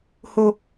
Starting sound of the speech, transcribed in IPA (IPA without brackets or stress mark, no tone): h